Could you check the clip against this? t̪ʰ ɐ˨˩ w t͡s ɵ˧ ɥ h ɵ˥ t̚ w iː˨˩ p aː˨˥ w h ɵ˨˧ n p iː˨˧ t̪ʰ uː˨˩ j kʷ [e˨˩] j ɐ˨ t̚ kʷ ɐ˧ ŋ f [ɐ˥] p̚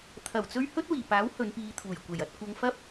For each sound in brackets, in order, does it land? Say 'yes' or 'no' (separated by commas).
yes, yes